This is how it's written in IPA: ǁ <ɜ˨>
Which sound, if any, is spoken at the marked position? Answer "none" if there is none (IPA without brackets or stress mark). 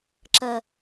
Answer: ɜ˨